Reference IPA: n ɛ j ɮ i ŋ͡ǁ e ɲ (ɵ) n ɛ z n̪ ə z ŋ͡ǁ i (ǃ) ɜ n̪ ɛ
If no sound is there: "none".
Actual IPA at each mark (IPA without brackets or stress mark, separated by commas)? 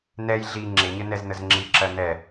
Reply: ə, ǁ